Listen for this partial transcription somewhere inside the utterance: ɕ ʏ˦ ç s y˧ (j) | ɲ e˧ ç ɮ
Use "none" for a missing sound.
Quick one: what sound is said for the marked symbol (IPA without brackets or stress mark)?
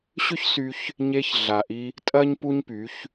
ç